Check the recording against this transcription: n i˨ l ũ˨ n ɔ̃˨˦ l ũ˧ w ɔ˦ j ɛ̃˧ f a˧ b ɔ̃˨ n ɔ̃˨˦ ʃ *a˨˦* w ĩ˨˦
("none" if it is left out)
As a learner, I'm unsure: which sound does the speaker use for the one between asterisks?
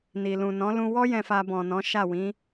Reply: a˦˨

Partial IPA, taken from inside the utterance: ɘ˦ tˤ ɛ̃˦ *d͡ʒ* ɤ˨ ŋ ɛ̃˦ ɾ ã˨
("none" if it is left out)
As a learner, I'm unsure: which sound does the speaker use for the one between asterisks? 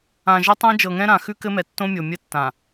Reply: d͡ʒ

